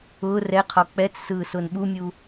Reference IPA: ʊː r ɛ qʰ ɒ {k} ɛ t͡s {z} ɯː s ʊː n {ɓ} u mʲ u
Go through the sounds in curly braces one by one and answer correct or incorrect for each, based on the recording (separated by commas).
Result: incorrect, incorrect, correct